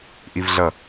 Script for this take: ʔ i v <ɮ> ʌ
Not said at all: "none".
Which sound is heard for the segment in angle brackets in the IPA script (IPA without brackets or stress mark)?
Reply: ɮ